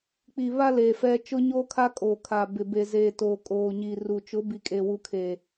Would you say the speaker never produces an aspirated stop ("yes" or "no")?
no